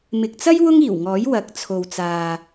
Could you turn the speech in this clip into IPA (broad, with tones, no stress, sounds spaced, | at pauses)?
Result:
m ɪ˨ k̚ t͡s ɐ˥ j w ʊ˥ ŋ iː˨˩ w ŋ ɔː˨˥ j w ɐ˨˥ k̚ t͡sʰ o˨ w t͡s aː˨